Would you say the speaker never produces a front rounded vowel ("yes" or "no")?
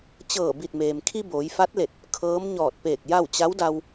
yes